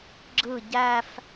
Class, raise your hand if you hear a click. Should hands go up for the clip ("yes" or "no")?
yes